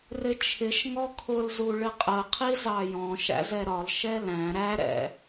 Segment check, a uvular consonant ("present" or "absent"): present